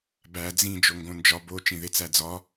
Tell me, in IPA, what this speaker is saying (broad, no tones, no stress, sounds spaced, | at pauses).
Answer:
b æ d͡z ĩ d͡ʒ o ŋ ɡ õ n d͡ʒ ɒ b o t͡ʃ ĩ ð e t͡s æ d͡z ɒ